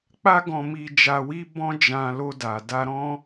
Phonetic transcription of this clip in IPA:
k͡p a˦ ɡ ɔ̃˧ m i˧ d͡ʒ a˧ w i˦ b ɔ̃˦ d͡ʒ ã˧ l o˧ d a˨ d a˧ ɾ ɔ̃˦

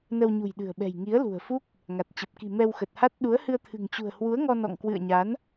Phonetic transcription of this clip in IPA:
n ə˧ w ɲ ṳ˨˩ j ɗ ɨ̤˨˩ ə̯ ɓ ɛ̤˨˩ j ŋ i˨˦ ə̯ l ṳ˨˩ ə̯ f u˦˥ k̚ | ŋ a˨˩ t̚ t͡ɕ ə˨˩ p̚ k i̤˨˩ m ɛ˧ w x ə˨˩ t̚ h a˦˥ t̚ ɗ u˨˦ ə̯ h ɨ˧ ə̯ t̪ʰ ɨ̤˨˩ ŋ t͡ɕ ṳ˨˩ ə̯ h w u˨˦ ə̯ ŋ ɔ˧ n ɔ̰˧˨ ŋ k w ɨ̰˧˨ ə̯ ɲ a˨˦ n

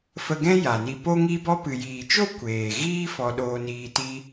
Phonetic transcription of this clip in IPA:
f ə˧ ɡ ɛ̃˦ j a˨ n i˧ p o˦ ŋ i˦ b ɔ˦ p ɨ˨ j iː˨ t͡ʃ o˦ kʷ eː˨ ɣ iː˦ f ɔ˧ ɗ oː˧ n iː˧ t i˦

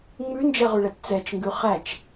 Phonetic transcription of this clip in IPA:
ŋ͡m ʉ n d͡ʒ ɛ ʁ ʉ ɭ ɛ t t͡s ɛ t͡ʃ ŋ ɡ ʉ χ æ t͡ʃ

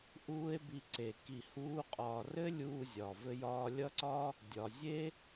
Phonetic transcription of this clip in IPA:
ʔ uː˦ e̯ b i˧ ǀ e˨ k i˧ h uː˦ qʼ ɒː˧ r ɘ˦ lʲ uː˧ zʲ ɒː˨ v ɘ˦ j ɒː˦ lʲ ʌ˦ ǀ ɒ˦ | dʲ ɒ˨ zʲ e˦

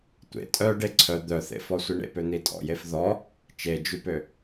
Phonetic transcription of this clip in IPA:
tʷ ḛ tʼ œ ɖ e ǀʰ œ d̪ œ θ ḛ f ɔ sʷ i ɳ ḛ p ø n̪ i tʼ ɔ̰ j e f ð ɔ | t͡ʃ e d͡ʒ y p ø

